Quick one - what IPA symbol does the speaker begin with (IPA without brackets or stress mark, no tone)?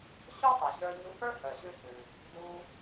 ɕ